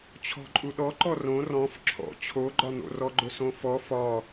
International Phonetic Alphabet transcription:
t͡ɕʰɔ̤ǃʼuɗɔǃɔ rõ rɔ̃f ǁʰɔ̰ t͡ɕʰoɡ͡ǃɒn̪o̰ rɔɡ͡ǃʊsõfɔ fɒ

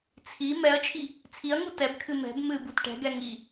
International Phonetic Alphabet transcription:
t͡sʰi mɛɐ̯t͡ʃʰi | t͡sʰiɐ̯ŋu tɛbkʰɨ mɛ̤b mɨbut ʈɛ̤ɡɛ ŋi

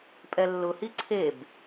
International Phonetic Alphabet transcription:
pʼɛlːʊhi ǀʰeb

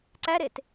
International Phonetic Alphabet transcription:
ǀæɾet

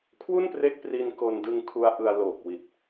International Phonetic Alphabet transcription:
kʰwu˥˩npre˦˥k̚pri˧n ko˧ndɯ˧ŋ kʰu˦˥a̯ʔɯ˧a̯ loː˨˩k̚ wi˨˩t̚

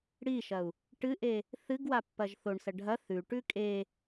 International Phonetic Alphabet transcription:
ɽiʃɐu̯ | ʈɨʔe | θɨɡwa pːɐʒθoɳsɐ ɖʱɐ θʉʈʉ kʼe

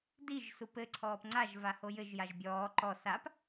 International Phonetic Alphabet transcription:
diʒ supɘ ǀʰɔːpŋ͡ǀaʒ vahojɘʒ jaʒbʲɔː ǃɔ sap

